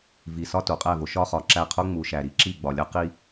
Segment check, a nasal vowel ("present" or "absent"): absent